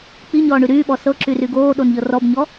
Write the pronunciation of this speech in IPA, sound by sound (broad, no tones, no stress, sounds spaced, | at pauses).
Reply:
k͡p i ɲ ɔː ɳ y ɾ yː ɓ ɔ s ɤ ǁ y r y ɡ oː ɗ o n ʎ ɤ r ɔ b ɲ ɔ